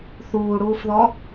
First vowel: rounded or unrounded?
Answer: rounded